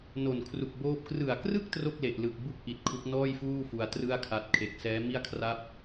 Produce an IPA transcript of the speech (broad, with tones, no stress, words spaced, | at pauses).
no˨˩nkʰru˨˩k̚boː˦˥p̚ krɯ˨˩a̯krɯ˥˩k̚ tro˥˩k̚le˨˩ʔlɯ˨˩k̚ bu˥˩k̚ʔi˨˩t̚ kʰu˦˥k̚nɔː˥˩jfuː˥˩ fu˧a̯trɯ˥˩a̯kʰa˦˥t̚ kʰe˨˩k̚sɛː˦˥mi˥˩a̯kʰra˥˩p̚